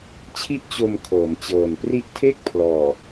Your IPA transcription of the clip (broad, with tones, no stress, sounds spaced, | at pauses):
t͡ɕʰ i˥˩ ʔ t͡ɕ o˧ m kʰ ɤː˩˦ m t͡ɕ ɤː˨˩ n p r i˦˥ ʔ tʰ e˥˩ k̚ pʰ l ɔː˨˩